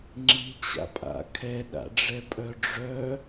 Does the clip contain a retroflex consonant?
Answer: yes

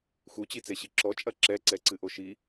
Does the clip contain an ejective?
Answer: yes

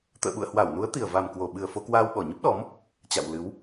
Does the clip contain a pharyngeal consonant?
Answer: no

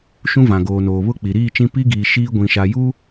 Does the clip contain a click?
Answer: no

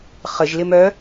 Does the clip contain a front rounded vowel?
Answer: yes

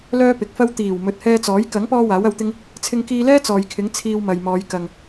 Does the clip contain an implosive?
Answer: no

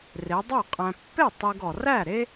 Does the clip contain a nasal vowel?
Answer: yes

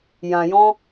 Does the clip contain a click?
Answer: no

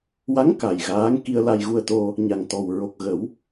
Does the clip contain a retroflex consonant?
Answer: no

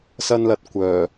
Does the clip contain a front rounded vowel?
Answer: yes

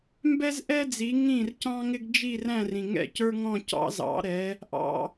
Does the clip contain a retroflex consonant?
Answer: no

